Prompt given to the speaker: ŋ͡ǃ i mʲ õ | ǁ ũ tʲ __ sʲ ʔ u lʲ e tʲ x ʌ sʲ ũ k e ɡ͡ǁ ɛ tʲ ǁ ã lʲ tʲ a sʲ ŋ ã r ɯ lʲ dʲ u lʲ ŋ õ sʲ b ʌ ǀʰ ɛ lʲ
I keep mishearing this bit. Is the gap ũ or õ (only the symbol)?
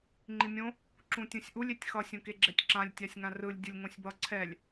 ũ